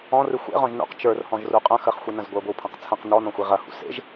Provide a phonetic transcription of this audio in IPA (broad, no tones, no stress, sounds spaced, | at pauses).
ɔ̃ r ɨ xʷ ḛ ʁ ɔ̃ ʒ n ṵ q t͡ʃ ə˞ r h ɔ̃ ʒ r u qʼ ɐ̃ x ə χ xʷ i n ɐ̃ z ɡʷ ə˞ ɡʷ ɨ w pʰ ɐ̃ q t͡sʰ ɐ̃ q n ɔ n ɔ̃ xʷ i ʁ ɐ h ṵ s ḛ ʒ